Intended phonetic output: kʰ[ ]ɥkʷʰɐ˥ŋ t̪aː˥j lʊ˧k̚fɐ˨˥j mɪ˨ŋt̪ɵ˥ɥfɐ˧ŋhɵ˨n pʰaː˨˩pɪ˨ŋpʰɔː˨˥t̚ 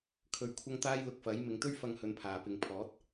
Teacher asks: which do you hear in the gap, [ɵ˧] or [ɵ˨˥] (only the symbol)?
ɵ˧